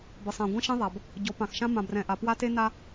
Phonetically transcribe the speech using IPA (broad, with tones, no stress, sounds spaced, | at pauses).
b ɘ˨ sˤ ã˨ ɡʷ ɛ̃˦ ʃ ẽ˦ ðˤ a˨ b | ɟ ɔ˨˦ p ã˨ x ʃ ã˦ m ã˨ b r ɛ̃˨ ʔ a˨ p w a˦ t e˦ n a˦